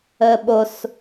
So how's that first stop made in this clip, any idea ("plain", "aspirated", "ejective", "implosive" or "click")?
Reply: implosive